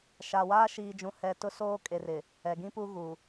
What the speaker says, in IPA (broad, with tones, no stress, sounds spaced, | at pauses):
ʃ a˨ w aː˦ ʃ iː˨ d͡ʒ ũ˨ h ɛ˨ t ʊ˦ s oː˦ kʼ e˨ r ɪ˨ | ɛ˨ ɡ ĩ˦ p u˦ ɣ u˨